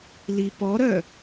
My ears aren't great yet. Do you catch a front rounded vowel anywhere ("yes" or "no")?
yes